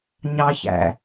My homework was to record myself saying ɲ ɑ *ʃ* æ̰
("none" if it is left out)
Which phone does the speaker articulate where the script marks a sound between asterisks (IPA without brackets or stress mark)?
ç